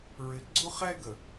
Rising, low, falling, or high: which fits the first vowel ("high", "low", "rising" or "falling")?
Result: low